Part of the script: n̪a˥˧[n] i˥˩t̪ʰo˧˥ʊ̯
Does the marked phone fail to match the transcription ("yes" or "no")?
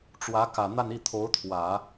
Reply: no